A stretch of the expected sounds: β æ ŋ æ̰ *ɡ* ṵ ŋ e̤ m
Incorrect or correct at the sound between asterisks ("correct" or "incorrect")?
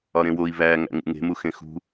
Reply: incorrect